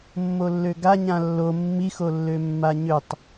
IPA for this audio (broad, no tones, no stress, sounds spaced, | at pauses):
mː o lː ø ɡ a ɲ ã lː o mː i x o lː ø mː a ɲ ø tˤ